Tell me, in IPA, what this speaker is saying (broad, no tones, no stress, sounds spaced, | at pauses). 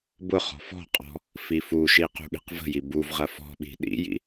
b ʊ χ ɔ̤ f ɔ̤ qʼ ɔ̤ | f i f u ʃ i q ṳ ɠ i̤ q v ə̤ j i b u v ʁ ɐ f ɔ̤ ɓ i̤ ɗ ḭ j ḭ